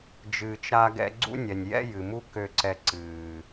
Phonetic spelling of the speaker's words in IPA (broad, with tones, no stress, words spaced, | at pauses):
d͡ʒɨː˨t͡ʃɾa˧ɡɛ̰˧ ɡ͡ǀṵ˦nʲɛ˨nʲjɛ̰˦ jɨ˨mu˦ kø˧ǀɛ˧ ǀɨː˨